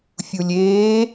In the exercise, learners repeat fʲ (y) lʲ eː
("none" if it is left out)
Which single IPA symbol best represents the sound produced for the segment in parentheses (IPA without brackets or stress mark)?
u